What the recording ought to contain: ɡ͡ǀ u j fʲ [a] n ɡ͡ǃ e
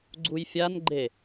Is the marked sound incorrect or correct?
correct